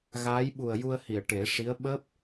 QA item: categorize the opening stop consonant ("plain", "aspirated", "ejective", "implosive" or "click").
implosive